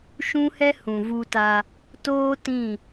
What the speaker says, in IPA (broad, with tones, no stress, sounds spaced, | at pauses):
ʃ ũ˦ h ɛ˦ h ũ˨ v u˦ t a˦ | t oː˦ t ĩ˦˨